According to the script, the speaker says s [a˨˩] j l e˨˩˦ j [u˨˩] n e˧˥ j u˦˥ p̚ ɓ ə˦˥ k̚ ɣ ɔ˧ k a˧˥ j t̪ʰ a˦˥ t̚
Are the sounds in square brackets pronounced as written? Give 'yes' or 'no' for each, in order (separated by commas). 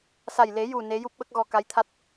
yes, yes